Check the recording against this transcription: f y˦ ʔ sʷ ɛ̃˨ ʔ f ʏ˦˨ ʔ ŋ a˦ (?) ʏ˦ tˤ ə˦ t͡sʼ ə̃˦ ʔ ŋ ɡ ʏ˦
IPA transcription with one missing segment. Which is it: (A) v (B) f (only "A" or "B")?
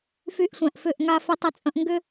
B